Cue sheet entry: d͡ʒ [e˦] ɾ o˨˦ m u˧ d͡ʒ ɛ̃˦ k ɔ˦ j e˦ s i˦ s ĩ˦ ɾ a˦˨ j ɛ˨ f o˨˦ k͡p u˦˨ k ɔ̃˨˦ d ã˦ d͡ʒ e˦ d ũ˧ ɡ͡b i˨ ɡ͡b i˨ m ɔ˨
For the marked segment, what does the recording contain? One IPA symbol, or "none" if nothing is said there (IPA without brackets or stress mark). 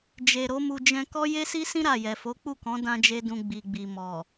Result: e˨